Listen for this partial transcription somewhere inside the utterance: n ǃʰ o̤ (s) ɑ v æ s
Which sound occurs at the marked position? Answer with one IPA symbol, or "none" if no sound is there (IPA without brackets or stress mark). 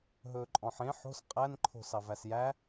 s